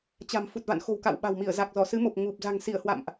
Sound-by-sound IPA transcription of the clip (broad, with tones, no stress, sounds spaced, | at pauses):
t͡ɕ a̤˨˩ m f u˨˩ t̚ v a̰˧˨ n x o̤˨˩ w k a̰˧˨ w ɓ a̤˨˩ w m i˧˩ ə̯ z a˨˩ k̚ z ɔ˧˩ s ɨ˨˦ m o˨˩ p̚ ŋ u˨˩ p̚ z a̤˨˩ ŋ s i˧˩ ə̯ h w a̰˧˨ m ʔ